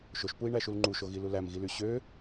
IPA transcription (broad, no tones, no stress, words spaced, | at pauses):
ʃoʃpui̯ɳæʃul ŋ͡ǃuʃoɣilu læmɣily ɕø